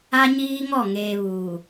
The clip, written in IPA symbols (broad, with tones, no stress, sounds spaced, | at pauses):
a˦ ɲ iː˦ ŋ ɔ˦˨ ŋ eː˨ β uː˨